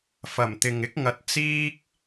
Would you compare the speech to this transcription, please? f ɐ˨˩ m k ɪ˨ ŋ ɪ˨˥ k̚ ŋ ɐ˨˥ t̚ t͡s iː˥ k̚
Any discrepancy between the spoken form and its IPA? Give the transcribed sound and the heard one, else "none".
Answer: k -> t̪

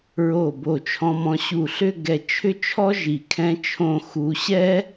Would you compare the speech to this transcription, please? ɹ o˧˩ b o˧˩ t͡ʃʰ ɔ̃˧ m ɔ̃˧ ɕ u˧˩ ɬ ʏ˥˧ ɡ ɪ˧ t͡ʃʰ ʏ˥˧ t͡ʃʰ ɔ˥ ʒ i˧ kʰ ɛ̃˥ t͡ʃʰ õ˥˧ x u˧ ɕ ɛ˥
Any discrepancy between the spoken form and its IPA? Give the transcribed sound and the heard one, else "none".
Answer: ɪ˧ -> ɛ˧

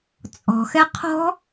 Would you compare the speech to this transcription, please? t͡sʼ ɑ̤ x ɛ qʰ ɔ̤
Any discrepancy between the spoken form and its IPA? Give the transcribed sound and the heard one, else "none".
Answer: ɑ̤ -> ɔ̤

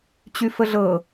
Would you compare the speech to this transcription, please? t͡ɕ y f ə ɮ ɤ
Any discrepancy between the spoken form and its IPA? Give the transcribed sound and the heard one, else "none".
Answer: none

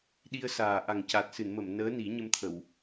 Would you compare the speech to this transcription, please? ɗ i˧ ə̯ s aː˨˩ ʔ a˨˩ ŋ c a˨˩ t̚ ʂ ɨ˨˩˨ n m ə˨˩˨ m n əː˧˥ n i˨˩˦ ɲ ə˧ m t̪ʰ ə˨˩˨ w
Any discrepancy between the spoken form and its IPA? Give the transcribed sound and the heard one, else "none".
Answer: ʂ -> s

